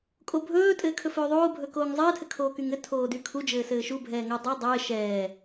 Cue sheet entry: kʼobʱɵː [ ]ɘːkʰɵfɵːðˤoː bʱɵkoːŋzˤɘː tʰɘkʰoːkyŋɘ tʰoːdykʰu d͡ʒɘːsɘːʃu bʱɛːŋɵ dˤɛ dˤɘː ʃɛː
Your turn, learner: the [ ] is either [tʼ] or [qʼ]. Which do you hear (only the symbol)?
tʼ